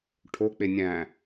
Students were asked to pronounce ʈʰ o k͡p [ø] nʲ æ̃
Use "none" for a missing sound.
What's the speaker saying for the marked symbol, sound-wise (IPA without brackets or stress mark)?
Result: e